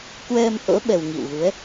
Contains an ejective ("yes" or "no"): no